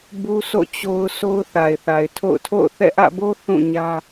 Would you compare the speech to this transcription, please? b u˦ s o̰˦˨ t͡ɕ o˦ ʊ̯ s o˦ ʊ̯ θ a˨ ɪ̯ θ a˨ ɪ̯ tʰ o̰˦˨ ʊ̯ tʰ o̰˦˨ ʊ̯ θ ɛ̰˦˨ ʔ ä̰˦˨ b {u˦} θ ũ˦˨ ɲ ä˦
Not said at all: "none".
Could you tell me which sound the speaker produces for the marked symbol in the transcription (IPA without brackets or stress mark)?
o˦